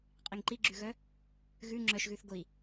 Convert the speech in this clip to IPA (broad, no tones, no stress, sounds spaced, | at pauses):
qʼ i ŋ ǃ i ɡ͡ǁ ʉ ɣ œ | ɣ ʉ ŋ͡ǁ œ ʃ ɣ ʉ θ ɡʷ i